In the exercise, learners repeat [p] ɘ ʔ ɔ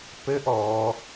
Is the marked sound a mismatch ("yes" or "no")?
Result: no